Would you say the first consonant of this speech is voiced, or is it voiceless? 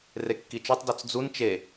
voiced